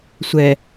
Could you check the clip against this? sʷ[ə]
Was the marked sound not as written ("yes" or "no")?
yes